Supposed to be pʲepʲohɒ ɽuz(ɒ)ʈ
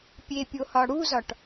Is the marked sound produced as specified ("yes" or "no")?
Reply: yes